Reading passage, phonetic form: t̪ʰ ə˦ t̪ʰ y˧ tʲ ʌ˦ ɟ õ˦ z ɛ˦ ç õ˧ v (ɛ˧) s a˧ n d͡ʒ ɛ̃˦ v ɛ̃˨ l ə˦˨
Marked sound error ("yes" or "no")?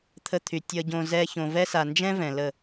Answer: yes